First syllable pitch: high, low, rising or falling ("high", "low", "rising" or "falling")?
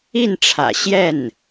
falling